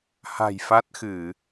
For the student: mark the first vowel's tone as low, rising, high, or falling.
low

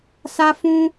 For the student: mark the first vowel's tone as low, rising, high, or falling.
high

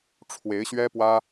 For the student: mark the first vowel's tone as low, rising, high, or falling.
rising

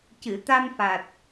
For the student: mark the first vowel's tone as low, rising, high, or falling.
low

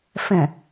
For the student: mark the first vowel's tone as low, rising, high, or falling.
low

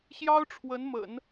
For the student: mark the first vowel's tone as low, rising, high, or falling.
high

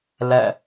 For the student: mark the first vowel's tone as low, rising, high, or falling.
falling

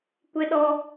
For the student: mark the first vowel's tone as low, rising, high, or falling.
high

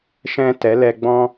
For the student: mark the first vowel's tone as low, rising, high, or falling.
high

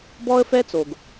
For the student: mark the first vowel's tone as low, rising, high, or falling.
high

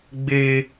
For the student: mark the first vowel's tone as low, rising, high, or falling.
high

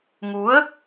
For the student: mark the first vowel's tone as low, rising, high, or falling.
rising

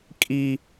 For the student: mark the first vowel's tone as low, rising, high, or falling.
low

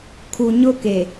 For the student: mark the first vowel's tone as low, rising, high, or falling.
low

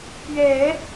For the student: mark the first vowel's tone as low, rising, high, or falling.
low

